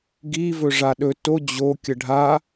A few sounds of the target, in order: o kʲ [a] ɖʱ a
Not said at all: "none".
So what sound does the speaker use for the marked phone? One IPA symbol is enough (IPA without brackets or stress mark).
ə